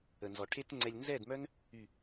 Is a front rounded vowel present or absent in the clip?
present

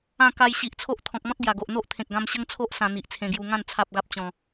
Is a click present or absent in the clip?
absent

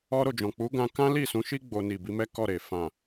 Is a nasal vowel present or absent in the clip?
present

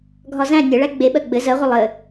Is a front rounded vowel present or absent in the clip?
absent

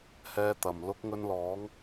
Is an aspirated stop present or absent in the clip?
absent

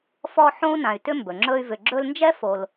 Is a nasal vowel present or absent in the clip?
present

